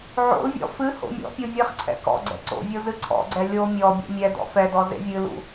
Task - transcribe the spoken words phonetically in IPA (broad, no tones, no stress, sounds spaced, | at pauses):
ʕ o̰ l vʲ ɔ̰ f ɨ h o̰ mʲ ɔ̰ pʲ o vʲ ɨ χ ǀʰ ɛ̰ k ɔ̰ ɡ͡ǀ ɛ̰ ǀ o̰ vʲ o z ɨ ǀʰ ɔ̰ ɡ͡ǀ ɛ lʲ o mʲ ɔ bʲ ḛ mʲ ɛ d ɔ̰ f ɛ d ɔ z ḛ vʲ ɨ l ṵ